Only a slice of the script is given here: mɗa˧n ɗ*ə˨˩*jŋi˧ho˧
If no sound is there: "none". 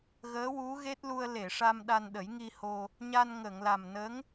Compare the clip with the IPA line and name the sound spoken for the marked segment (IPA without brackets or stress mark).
ə˨˩˦